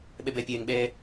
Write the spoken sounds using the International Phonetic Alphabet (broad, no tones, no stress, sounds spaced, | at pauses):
ɓ ɛ b ɛ pʲ ɛː ŋ ɓ ɛː